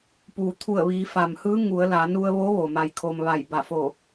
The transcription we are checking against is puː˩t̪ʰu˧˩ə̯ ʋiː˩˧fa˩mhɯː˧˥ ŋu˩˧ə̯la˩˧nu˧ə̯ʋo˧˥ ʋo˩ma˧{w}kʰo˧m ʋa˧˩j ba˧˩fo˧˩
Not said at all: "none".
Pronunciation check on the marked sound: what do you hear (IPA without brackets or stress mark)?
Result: j